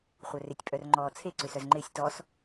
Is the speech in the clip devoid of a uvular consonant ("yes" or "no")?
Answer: no